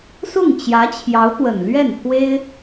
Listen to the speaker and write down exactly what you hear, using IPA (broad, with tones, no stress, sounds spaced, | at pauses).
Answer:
s ʊ˥˩ ŋ t͡ɕ j ä˧˥ t͡ɕʰ j ɑ˧˥ ʊ̯ t̪ w ə˨˩ n l ɥ ɛ˥˩ n pʰ w e˥ ɪ̯